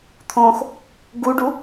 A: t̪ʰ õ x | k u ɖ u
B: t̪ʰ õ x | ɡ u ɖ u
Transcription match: B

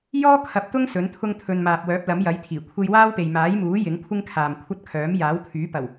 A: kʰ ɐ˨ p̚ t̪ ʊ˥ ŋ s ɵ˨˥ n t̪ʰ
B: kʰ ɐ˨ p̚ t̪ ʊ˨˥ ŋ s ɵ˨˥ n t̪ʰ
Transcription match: A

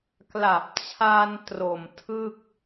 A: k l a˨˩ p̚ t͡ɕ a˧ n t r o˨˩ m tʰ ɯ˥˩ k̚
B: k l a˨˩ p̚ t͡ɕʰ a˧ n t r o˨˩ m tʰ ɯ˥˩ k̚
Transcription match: B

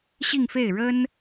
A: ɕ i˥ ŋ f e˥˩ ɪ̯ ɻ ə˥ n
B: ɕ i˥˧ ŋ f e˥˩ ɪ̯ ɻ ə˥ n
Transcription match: B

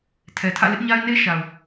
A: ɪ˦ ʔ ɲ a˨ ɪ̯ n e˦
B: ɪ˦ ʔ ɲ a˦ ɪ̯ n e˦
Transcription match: B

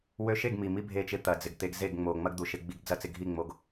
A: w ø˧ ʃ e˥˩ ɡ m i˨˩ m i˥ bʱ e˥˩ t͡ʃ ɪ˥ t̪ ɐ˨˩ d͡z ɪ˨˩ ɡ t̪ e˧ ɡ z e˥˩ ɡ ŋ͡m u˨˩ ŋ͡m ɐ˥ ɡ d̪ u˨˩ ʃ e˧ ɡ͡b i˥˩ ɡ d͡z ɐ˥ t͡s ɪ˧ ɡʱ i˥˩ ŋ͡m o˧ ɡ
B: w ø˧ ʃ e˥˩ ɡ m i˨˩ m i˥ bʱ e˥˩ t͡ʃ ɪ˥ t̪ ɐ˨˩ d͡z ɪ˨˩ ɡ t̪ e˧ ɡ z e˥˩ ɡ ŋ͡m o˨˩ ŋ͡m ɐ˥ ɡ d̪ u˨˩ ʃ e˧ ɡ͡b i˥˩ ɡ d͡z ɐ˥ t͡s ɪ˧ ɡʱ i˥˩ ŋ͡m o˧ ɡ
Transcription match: B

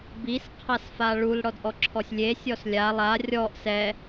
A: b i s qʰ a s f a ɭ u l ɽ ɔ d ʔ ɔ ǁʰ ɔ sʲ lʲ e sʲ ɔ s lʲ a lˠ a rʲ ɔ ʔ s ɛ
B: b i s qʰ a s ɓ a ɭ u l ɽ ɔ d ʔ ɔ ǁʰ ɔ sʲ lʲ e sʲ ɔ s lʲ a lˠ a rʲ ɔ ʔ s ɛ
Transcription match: A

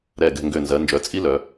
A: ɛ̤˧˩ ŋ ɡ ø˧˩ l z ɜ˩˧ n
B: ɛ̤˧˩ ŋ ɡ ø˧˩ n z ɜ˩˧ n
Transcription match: B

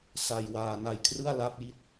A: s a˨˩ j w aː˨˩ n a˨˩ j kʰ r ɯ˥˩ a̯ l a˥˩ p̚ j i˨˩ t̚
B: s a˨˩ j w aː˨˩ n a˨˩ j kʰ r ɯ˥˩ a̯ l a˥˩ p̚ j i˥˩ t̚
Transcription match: B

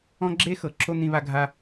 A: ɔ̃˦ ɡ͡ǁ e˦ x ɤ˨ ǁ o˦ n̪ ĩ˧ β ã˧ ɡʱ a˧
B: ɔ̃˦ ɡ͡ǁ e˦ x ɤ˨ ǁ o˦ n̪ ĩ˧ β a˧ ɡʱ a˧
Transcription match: B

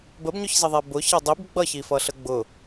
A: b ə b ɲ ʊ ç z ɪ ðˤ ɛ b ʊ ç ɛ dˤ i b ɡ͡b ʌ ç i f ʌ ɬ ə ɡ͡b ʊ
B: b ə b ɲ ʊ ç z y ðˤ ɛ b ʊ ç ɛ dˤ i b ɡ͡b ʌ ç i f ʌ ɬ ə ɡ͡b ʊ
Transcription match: A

